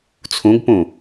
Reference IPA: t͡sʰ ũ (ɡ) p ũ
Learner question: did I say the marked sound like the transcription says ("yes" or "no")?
yes